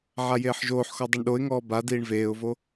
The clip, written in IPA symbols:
ʕajeːħʒoːħxɔ dˤɨɳɗoɪ̯ŋɔː ba diːɳveːʊ̯vo

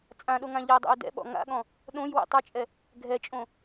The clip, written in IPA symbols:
t͡sʼãɗoŋã ʎɛdˤɛ̰y̯ dɛ̰ɓɔ̰ ŋa̰ɠɔ̃ | ɗõjwɛ̰ tˤɘt͡ʃʼɛ | ɡʱɛt͡ʃʼõ

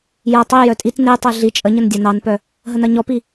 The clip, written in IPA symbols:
jɐ tˤijœ tʼit netˤe ɮi t͡ʃʼəɲən dʲɐnɑnpœ | ɦənɐɲɔpi

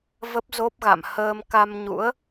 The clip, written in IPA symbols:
və˦˥p̚zo˦˥p̚ɣa̰˧˨m həː˧m ka˧mɲṵ˧˥ə̯

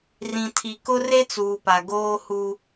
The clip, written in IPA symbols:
rĩ˨tʰi˨kʊ˦re˦ t͡suː˨pa˨ɡoː˦hu˦

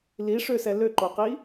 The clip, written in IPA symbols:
liʂøsɛ løǃoqi

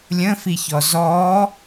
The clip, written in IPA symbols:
lʲə̃fiçɔ zɔ

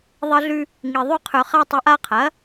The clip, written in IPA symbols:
ðˤɐ˧ɮʉ˧ | ŋi˨˩ ðˤʉ˧qʰɵ˨˩χa˧tˤʉ˩˥ʔ a˧qʰɐ˩˥

